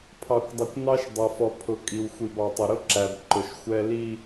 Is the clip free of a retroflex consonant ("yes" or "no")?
yes